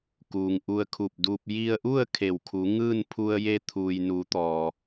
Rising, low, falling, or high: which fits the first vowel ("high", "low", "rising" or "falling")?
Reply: low